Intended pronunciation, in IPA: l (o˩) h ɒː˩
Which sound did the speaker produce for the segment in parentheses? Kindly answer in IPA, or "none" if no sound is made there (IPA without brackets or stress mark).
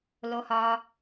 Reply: o˩